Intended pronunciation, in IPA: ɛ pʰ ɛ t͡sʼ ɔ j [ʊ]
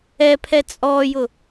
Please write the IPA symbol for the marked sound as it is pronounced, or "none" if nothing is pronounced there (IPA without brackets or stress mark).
ʊ